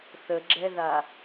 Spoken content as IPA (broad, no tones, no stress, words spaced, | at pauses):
θəɡ͡ǁɛða